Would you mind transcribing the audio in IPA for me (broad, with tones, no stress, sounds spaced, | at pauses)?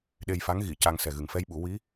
ɗ e˧ j f a˧˥ ŋ ɣ i˨˩˨ c a˧ ŋ s ɛ˨˩ ɣ ɨ˨˩ ŋ f ɛ˧ j ɓ u˨˩˦ w i˧˥